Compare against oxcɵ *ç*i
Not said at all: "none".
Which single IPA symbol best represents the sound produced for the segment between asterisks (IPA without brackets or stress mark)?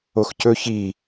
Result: ç